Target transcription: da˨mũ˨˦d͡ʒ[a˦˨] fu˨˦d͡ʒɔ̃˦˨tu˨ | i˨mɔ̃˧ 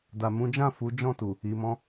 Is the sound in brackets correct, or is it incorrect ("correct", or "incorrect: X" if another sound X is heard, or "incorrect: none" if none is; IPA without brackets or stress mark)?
incorrect: ã˦˨